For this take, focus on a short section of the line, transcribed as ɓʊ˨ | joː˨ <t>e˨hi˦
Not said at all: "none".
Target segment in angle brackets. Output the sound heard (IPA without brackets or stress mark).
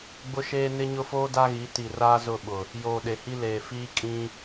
ɗ